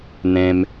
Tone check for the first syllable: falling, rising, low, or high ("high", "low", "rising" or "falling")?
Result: high